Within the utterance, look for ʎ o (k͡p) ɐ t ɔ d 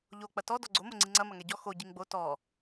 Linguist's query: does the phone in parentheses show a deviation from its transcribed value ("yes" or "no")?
no